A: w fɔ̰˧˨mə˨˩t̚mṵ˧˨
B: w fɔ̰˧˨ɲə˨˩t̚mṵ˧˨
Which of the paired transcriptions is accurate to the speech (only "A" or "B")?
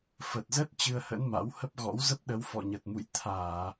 B